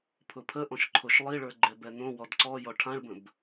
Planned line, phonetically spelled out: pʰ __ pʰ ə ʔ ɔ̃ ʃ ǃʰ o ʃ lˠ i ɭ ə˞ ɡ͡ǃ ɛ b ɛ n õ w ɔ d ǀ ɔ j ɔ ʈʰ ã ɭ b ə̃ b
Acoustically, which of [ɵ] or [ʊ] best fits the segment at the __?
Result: ʊ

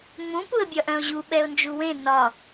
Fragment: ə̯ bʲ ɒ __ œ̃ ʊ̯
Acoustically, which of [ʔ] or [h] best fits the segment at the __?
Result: ʔ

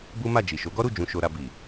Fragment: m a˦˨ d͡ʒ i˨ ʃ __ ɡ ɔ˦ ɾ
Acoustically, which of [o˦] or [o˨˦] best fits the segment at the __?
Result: o˨˦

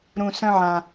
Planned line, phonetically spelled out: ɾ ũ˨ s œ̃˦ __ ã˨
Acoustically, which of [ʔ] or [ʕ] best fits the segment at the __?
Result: ʕ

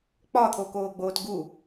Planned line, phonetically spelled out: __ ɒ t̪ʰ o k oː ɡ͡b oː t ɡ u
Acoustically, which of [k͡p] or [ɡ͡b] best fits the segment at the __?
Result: k͡p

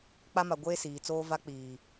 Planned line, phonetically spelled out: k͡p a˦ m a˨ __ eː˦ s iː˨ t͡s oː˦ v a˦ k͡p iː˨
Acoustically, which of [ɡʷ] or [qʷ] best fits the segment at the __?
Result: ɡʷ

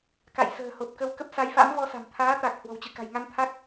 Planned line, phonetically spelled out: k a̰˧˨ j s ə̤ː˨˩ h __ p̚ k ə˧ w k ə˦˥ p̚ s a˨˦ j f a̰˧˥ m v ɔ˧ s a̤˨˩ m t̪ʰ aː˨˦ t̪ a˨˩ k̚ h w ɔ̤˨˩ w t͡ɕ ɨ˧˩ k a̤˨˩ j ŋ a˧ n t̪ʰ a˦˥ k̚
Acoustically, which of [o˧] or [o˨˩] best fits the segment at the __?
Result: o˨˩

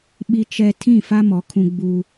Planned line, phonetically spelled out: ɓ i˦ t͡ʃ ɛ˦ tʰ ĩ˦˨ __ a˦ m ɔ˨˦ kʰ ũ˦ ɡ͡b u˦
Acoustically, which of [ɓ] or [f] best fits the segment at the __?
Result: f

